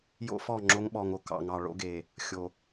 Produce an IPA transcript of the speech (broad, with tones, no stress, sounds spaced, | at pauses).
j o̰˦ f ɔ˦˨ ŋ͡ǁ o˦ ŋ ɓ ɔ˨ ŋ o˨ k ɑ̰˨ ŋ ɑ˨ ɭ o̰˦ ɡ e˨ | xʲ o˨